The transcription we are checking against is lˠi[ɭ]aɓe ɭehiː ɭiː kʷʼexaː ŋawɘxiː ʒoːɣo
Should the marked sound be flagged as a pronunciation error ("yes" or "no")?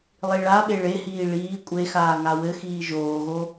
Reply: no